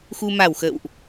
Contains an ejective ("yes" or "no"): no